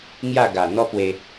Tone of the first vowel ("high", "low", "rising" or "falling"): falling